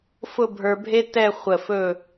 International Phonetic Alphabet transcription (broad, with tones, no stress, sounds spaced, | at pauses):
f ʊ˥˧ bʱ ə˞˧ bʱ e˥ t ɛ˥˧ χʷ ə˧˩ f ɵ˥˧